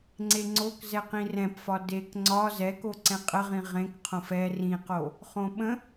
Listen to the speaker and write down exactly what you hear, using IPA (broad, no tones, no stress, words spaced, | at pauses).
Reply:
ŋ͡ǀeŋ͡ǀok zɛqĩrɛ̃pfɒ dek ŋ͡ǀɒ zɛko ǀɛ̃qʼəʁĩ ʁẽkqʰõf ɛ rĩqo | χõɓə̃